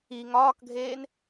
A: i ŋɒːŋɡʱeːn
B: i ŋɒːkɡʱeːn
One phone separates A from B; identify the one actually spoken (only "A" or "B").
B